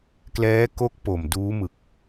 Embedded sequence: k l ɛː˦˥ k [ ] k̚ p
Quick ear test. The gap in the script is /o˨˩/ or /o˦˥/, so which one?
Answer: o˦˥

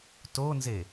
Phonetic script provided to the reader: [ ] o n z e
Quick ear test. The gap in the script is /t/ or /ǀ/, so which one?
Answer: t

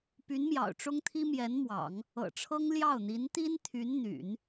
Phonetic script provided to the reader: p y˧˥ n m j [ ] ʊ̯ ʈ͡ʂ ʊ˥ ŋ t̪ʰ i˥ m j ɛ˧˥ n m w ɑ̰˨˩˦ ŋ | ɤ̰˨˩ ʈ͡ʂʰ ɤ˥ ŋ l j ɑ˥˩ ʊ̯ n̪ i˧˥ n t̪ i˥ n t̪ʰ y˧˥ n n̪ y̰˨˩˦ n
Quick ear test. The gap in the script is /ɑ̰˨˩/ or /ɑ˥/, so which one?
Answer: ɑ̰˨˩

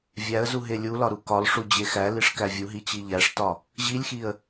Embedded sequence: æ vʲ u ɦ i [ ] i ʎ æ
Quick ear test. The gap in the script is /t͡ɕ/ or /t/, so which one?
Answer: t͡ɕ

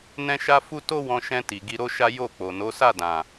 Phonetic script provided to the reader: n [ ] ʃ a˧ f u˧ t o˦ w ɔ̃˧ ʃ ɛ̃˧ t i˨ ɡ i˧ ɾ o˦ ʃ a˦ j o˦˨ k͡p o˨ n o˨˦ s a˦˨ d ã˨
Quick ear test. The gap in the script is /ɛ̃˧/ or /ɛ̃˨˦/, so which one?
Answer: ɛ̃˧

